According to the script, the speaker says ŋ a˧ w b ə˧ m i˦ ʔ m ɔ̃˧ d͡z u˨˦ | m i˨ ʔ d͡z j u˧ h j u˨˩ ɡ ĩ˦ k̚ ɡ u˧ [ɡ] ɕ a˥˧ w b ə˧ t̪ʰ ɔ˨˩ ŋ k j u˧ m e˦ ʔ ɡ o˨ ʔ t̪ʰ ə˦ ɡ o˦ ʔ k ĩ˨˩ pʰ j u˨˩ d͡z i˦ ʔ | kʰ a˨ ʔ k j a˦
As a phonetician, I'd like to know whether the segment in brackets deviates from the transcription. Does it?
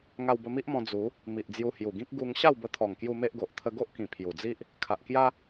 yes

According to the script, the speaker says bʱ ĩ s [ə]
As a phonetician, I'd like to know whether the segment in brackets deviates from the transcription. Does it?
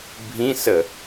no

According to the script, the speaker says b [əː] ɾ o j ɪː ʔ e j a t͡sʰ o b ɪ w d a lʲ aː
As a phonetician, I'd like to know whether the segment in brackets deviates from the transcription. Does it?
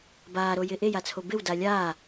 yes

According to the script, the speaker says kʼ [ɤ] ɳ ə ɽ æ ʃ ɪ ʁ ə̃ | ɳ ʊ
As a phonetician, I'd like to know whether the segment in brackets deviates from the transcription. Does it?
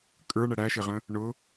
yes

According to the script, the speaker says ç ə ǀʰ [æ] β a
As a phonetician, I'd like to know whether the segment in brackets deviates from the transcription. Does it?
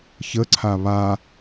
yes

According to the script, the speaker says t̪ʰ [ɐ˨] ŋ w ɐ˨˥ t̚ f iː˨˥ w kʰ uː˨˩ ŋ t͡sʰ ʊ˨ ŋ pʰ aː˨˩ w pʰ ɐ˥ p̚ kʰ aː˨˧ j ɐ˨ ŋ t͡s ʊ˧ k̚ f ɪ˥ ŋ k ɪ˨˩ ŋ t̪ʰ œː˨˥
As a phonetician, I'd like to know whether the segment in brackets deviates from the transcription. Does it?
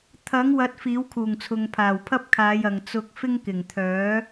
yes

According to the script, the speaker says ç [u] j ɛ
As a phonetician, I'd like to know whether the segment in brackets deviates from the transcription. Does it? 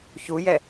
no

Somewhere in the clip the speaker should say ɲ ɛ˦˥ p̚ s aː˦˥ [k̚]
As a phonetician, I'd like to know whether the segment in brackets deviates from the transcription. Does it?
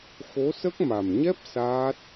yes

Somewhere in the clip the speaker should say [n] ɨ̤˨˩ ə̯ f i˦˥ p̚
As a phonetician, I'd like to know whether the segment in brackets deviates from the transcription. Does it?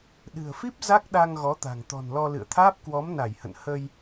yes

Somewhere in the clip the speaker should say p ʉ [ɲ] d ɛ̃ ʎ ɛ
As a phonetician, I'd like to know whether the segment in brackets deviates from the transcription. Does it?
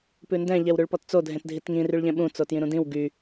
yes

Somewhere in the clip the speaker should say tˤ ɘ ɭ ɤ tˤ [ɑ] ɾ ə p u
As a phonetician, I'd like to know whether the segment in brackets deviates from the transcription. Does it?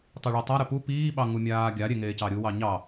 yes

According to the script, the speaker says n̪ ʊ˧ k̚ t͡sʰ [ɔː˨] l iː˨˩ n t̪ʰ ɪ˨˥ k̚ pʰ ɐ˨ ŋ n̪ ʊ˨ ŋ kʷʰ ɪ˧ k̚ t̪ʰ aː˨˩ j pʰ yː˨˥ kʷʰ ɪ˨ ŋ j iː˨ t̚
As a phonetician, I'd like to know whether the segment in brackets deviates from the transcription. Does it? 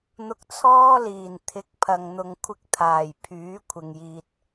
yes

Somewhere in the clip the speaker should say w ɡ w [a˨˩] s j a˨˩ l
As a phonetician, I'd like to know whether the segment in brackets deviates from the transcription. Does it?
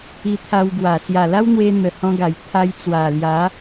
no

